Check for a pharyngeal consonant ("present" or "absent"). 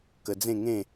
absent